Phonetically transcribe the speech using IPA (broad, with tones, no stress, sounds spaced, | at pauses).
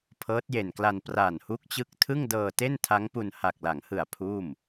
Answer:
pʰ ɤː˦˥ t̚ j e˨˩ n k l a˧ n p r aː˨˩ n h u˦˥ k̚ t͡ɕ ɯ˦˥ k̚ tʰ ɯ˥˩ ŋ d ɤː˧ t e˥˩ n tʰ a˦˥ ŋ p u˧ n h a˨˩ k̚ l a˩˦ ŋ h ɯ˨˩ a̯ pʰ uː˥˩ m